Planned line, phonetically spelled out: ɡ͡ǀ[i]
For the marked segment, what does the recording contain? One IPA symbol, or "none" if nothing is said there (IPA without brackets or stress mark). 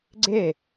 e